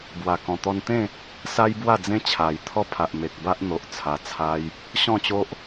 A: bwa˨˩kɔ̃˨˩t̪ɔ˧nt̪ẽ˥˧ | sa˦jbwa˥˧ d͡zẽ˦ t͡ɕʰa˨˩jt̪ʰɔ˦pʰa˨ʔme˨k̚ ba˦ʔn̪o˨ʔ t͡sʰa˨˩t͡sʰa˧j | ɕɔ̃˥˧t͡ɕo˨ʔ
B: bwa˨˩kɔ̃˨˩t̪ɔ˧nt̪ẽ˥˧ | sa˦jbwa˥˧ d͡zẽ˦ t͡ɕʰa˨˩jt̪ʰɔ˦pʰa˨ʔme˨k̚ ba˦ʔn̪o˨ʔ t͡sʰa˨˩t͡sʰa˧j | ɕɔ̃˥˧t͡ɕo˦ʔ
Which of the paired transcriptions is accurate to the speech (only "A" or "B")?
B